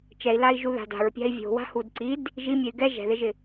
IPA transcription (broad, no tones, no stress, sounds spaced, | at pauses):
t͡ʃ ɛ i̯ l a i̯ ʒ u ð a̤ d a̤ ɹ pʲ a̤ i̯ vʲ o̤ w a̤ h u d ǀ i d | ʒ i mʲ ɛ y̯ ɡ ɛ ʒ ɛ̤ ð ɪ ʒ ɪ